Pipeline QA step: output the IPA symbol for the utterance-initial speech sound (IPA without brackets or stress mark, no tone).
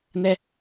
n